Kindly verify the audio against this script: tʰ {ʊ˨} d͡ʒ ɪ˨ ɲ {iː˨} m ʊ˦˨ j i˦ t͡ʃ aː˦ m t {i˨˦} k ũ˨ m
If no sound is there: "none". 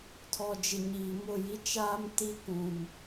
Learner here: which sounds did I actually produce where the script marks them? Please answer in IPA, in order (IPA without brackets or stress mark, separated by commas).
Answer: ɔ˨, iː˨, i˦